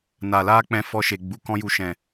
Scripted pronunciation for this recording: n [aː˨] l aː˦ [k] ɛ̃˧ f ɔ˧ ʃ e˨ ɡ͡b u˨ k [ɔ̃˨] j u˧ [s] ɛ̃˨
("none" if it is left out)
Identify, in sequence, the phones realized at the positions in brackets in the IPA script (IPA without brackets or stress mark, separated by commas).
a˨, k͡p, ɔ̃˦, ʃ